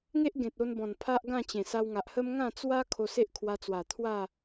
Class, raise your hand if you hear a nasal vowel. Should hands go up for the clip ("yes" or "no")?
yes